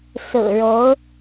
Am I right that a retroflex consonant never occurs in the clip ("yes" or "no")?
no